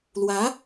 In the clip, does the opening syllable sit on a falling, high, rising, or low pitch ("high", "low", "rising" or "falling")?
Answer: rising